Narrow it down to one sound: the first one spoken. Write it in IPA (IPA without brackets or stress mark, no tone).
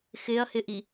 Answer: x